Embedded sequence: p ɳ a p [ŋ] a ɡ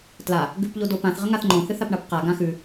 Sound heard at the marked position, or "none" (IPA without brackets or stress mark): q